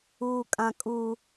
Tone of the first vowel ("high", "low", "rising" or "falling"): high